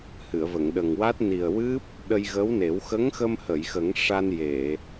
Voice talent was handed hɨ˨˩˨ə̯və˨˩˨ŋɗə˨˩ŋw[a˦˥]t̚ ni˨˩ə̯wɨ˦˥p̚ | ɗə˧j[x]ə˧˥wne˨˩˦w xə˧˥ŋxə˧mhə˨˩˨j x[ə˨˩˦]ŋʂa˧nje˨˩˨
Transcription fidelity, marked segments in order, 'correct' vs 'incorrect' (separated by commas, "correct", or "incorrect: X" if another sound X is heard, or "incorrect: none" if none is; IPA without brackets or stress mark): correct, incorrect: ɣ, correct